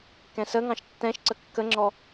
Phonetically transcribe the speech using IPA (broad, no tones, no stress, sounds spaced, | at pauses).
k ɛ̃ s ə ŋ ɑ̃ ʃ tː ɛ̃ ʃ ǀ ə kː ə ŋ͡ǁ ɔ